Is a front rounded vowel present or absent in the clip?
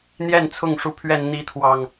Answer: absent